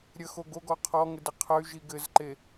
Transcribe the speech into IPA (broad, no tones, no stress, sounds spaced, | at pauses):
ɾʲ ə x o ɡ o ɡ ɔ qʰ ɔ ŋ ɘ d ɘ qʰ ə y̯ ʒ i ɡ ɘ z ǃ e